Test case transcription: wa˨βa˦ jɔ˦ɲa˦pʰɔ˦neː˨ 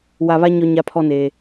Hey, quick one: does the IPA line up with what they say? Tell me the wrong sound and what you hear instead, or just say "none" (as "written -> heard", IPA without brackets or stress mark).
j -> ɲ